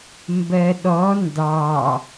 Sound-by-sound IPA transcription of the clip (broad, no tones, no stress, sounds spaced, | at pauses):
m b ɜ ɗ ɔ n d ɑ